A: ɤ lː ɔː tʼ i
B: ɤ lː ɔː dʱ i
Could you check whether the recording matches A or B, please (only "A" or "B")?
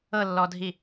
B